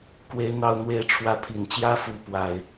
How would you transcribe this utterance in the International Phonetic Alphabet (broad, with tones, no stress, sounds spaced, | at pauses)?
k w e˦ ɪ̯ n̪ ɑ˦ ʊ̯ n̪ w e˦ ɪ̯ ʈ͡ʂʰ w ä˥˨ pʰ i˨˩ n t͡ɕ j ä˦ f u˨˦ p w a˨˩ ɪ̯